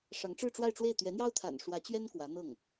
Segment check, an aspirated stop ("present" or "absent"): present